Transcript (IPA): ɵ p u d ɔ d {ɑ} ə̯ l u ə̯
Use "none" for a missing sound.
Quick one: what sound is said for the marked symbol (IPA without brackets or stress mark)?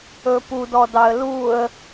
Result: ɑ